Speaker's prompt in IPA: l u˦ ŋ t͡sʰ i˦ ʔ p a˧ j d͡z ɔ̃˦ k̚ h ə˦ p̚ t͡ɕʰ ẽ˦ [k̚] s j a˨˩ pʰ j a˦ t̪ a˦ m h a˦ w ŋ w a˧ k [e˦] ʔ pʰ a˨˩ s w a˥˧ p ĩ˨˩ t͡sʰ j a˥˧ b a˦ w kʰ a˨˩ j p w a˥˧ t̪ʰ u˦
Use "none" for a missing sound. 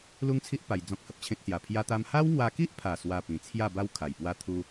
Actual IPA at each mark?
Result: k̚, i˦

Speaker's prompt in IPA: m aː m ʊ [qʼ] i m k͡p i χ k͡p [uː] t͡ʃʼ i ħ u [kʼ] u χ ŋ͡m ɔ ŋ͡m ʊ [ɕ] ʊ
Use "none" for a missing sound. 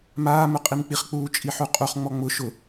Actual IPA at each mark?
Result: qʼ, uː, qʼ, ʃ

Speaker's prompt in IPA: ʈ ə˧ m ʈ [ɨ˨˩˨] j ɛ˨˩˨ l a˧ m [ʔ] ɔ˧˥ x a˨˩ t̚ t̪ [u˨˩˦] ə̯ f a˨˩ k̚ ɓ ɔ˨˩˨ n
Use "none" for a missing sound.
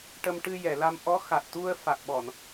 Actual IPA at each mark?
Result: ɨ˧, ʔ, u˧

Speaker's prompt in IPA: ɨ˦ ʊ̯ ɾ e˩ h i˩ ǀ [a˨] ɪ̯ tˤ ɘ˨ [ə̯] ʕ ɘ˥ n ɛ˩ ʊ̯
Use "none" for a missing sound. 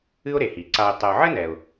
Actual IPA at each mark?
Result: a˨, ʊ̯

